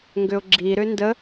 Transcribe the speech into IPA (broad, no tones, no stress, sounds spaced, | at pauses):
ŋ ɡ ʏ ʊ̯ ɡ͡ǁ i ɾ ʏ n d ə